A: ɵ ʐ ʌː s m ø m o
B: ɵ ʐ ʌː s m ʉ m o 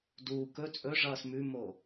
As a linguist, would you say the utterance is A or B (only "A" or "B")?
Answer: B